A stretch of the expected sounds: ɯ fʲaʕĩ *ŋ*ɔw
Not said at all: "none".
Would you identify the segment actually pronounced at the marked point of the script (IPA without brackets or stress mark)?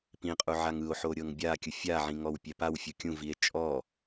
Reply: ŋ